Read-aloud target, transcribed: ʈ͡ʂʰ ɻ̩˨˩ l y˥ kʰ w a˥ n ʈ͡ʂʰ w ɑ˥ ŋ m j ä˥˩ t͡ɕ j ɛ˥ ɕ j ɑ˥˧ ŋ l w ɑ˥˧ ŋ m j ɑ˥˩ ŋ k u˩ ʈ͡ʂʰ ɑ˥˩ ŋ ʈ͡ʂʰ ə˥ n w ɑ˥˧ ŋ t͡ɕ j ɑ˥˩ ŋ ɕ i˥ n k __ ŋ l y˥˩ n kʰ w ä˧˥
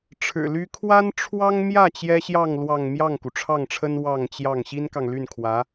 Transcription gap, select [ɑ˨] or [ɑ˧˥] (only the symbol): ɑ˨